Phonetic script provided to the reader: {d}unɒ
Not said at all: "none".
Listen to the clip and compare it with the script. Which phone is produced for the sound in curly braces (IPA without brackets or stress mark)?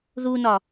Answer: ð